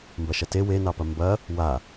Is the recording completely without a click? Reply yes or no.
yes